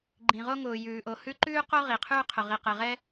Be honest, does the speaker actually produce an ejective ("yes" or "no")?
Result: no